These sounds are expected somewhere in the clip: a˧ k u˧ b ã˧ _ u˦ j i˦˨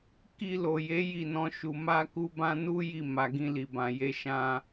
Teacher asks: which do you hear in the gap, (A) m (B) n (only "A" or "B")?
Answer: B